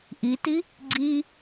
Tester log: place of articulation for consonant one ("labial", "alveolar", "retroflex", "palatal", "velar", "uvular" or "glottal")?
glottal